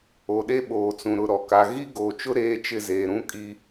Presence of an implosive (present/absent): present